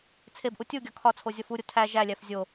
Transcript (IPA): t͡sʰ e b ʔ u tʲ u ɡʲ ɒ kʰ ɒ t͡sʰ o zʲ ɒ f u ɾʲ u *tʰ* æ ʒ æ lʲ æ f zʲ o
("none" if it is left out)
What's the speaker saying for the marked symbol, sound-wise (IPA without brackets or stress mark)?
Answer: tʰ